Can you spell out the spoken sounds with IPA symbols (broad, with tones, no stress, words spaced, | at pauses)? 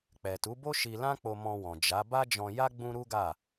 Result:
k͡pɛ˨ tu˨˦bo˦ʃi˧lã˦ k͡po˧mɔ̃˧wɔ̃˨ d͡ʒa˨˦ ba˦d͡ʒɔ̃˧ja˦ ɡ͡bũ˦ɾu˦ɡa˦˨